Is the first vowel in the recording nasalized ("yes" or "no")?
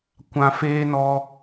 yes